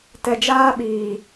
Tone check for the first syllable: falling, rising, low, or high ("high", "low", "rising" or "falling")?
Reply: low